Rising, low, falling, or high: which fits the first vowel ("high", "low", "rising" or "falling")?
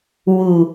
low